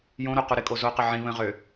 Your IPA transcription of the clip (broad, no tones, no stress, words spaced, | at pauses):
jõɾo quɾɪkʼo zoqə ʕĩ βə̃ʁø